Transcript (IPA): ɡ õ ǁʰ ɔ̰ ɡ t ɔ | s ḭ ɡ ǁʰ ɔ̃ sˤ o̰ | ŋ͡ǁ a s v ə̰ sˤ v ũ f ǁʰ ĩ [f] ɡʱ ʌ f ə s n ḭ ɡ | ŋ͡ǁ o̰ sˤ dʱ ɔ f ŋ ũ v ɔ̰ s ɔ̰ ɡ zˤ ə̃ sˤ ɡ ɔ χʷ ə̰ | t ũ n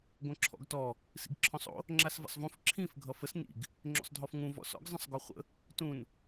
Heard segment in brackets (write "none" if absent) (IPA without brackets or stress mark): f